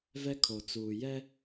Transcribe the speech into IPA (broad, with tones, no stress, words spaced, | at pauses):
vɛ˦ kʰo˨ t͡suː˨jɛ˦